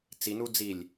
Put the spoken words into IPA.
t͡sinu d͡zilʲ

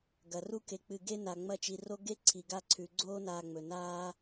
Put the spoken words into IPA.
ɡɐ˩ru˦ke˨k͡pɨ˨ ɡe˥ na˨ŋ͡mɐ˦t͡ʃi˨ ro˦ɡe˥ ǀʰi˩ɡa˦ǀʰʉ˩ ɡ͡ǀoː˦naː˨ŋ͡mɵ˩ naː˦

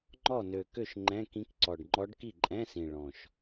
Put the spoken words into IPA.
ŋ͡ǃɔ˥˩nø˨˩kø˥˩ʃ ŋ͡ǃɛ̃˧˥˧kĩ˧˥k ǀɔ˨˩ɖŋ͡ǃɔ˧˥ɖki˥˩ ǃʼɛ̃˧˥˧sĩ˨˩ ɭɔ̃˨˩ʃ

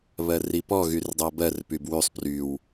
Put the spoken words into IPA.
βɜripɔ ɣyrdˤɜbɜr pybwysˤ pryw

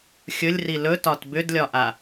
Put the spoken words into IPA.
xʲɵlʲri lɵtɒt bʏdlʲɒʔa

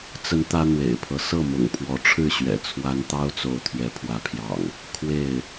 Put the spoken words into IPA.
t͡sə˨˦n t̪ä˦n̪wḛ˨˩ɪ̯pʰɤ˦ sɤ˥˨mʊ̰˨˩ŋpʰwɔ˨˦ʈ͡ʂʰɻ̩˥˨ ɕɥɛ̰˨˩t͡sʰwa˦n t̪ɑ˦ʊ̯t͡so˨˦ʊ̯ t̪ʰɥɛ˨˦pʰwä˨˦pʰjɑ̰˨˩ŋ | kʰwe˥˨ɪ̯

